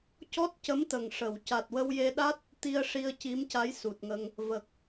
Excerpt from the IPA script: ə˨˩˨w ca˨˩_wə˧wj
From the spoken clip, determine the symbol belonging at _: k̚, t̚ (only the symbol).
t̚